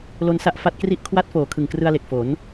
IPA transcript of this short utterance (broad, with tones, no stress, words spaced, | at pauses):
lo˧nsa˥˩ʔ fa˦˥t̚kri˥˩ʔ kʰwa˥˩t̚ foː˨˩kʰɯ˨˩ŋkrɯ˧a̯le˨˩k̚ fo˩˦n